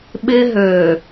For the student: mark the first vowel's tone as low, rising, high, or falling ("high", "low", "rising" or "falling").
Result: high